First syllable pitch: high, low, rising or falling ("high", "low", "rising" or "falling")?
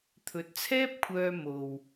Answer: rising